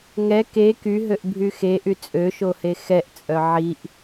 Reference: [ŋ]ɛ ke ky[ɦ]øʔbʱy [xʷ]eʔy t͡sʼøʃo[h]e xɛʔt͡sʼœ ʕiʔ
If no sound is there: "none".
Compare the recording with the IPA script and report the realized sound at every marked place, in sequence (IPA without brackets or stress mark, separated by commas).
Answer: ŋ, ɦ, x, h